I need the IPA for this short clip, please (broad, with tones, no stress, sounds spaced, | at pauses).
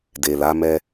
d e˨ l a˨˦ m ɛ˧